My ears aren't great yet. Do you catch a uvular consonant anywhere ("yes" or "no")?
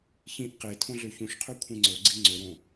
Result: yes